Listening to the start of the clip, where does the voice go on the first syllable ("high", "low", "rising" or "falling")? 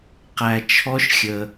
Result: low